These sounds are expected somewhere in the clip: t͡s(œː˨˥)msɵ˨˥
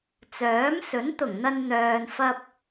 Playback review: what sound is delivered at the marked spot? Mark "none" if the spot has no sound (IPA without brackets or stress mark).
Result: œː˨˥